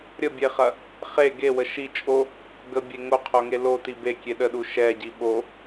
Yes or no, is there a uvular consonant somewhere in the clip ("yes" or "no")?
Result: yes